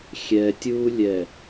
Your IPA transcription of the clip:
xʲ ɛ tʲ u lʲ ɛ

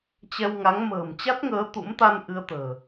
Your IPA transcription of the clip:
t͡ɕ ɛ˧ w ŋ a˨˦ ŋ m ə̤ː˨˩ m t͡ɕ a˦˥ t̚ ŋ əː˨˦ t̪ ṵ˧˥ m t̪ a˧ n ʔ ɨ˧ ə̯ t̪ ə̤ː˨˩

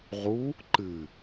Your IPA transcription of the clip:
ʁ u | ǃ ɨ

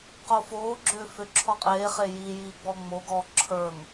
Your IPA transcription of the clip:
q o f oː ɡ͡ǁ ʏː f ʏ ǁʰ ɔ qʼ eː χ e j i j iː ɡ͡b ɔ ŋ͡m o ɡ ɔː ǁʰ ə˞ ŋ

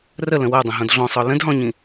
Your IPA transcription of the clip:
r ə l ə̃ w a dˤ ə̃ ɦ õ d ɮ ɔ̃ sˤ ɔ l ə̃ d ɦ ɔ̃ ɲ ĩ

